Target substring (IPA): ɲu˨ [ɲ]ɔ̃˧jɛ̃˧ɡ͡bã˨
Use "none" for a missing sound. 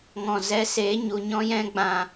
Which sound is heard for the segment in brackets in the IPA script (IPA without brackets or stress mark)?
ɲ